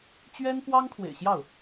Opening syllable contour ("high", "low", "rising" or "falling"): high